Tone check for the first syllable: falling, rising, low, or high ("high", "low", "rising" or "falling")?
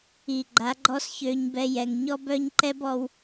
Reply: low